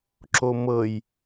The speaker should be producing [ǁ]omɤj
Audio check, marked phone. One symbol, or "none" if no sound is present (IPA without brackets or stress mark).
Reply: ǁ